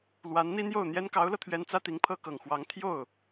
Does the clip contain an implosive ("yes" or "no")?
no